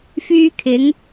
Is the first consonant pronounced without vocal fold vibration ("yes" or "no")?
yes